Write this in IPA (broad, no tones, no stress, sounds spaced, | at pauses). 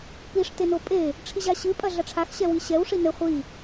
p i ʂ t e n o pʼ e | ʈ͡ʂʰ i ʑ a ɕ ɨ pʼ ɐ ɮ ɐ ʈ͡ʂʰ a x ɕ ɛ w i ɕ ɛ w ʂ i n ɘ χʷ i